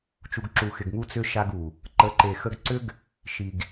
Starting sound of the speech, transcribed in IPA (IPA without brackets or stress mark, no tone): t͡ʃ